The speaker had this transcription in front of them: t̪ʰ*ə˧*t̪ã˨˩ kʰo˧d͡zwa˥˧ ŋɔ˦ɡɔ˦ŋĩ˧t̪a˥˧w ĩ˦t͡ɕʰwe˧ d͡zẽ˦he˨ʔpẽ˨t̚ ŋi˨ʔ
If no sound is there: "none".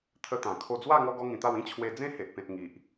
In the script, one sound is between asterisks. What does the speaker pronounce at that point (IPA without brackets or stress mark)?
ə˧